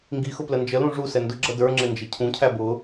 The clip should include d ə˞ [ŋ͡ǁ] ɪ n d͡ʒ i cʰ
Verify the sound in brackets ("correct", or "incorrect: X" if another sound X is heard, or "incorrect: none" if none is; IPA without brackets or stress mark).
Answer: correct